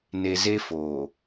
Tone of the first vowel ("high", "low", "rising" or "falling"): low